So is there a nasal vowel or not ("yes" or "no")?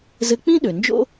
yes